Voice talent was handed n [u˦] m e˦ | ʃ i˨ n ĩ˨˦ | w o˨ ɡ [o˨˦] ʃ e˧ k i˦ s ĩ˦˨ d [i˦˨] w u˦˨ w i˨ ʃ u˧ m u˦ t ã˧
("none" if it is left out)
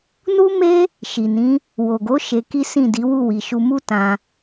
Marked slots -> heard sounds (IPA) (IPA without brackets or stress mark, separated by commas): u˦, o˨˦, i˨˦